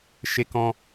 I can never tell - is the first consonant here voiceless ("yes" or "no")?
yes